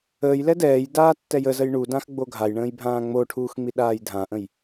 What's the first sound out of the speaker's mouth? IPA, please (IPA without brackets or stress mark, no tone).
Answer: əː